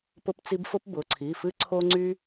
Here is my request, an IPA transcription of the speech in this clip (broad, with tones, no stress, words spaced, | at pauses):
pʊ˥pt͡si˥b fʊ˥pbʊ˩˧˩ǀʰi˩˧˩fɨ˥ ǀʰo˥ŋ͡ǀy˥